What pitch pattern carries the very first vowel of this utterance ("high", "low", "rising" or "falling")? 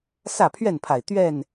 falling